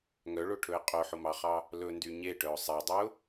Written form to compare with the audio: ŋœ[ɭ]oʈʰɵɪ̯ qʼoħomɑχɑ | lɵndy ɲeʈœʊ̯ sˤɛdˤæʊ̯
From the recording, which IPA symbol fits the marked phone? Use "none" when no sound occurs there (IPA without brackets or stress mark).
ɭ